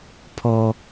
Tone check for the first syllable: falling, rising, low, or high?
high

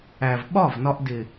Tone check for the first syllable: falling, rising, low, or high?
low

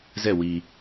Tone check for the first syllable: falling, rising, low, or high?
falling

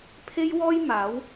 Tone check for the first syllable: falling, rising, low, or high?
high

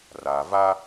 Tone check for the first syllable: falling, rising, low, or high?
low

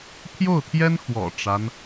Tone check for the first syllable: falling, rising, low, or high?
falling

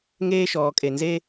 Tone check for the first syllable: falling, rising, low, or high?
high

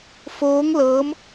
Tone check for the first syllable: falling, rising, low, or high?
rising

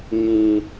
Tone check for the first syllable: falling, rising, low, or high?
low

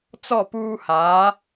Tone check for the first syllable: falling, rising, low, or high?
falling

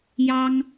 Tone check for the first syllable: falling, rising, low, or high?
high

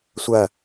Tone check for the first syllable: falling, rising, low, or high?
falling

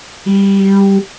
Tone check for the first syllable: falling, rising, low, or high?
low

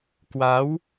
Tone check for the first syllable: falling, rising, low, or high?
rising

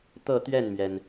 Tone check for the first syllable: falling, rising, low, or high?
falling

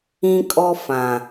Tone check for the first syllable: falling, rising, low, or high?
high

